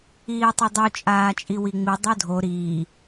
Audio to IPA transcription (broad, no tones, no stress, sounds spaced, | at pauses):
iː tˤ ɪ dˤ u t͡ʃʼ aː t͡ʃʼ i w i ŋ͡m i dˤ o dʱ o ɾ iː